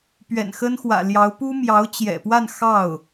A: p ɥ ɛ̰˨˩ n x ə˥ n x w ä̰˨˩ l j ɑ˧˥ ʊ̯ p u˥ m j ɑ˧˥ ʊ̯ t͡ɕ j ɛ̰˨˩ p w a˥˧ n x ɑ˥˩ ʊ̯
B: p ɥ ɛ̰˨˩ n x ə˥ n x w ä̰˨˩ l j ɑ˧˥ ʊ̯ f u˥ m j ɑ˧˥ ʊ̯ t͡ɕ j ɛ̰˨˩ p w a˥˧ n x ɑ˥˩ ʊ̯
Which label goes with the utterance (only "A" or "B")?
A